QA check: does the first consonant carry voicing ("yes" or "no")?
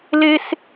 yes